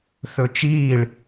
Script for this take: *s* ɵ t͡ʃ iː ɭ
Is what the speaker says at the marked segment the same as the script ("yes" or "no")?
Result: no